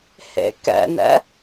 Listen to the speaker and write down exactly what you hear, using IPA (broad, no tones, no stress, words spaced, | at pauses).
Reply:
hḛkɛ̰nɛ̰